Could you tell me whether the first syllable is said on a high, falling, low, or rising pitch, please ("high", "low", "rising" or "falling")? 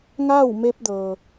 falling